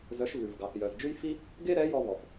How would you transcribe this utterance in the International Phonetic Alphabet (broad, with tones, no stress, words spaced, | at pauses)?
zœ˧˥ʃvʉ˨vɡɑ˨θ jœ˨zd͡ʒʉ˥jfi˥ | ɡe˥ɾɛ˧˥ jɔ˥ vɔ˨f